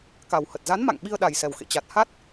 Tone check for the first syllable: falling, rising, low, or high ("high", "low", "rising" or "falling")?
low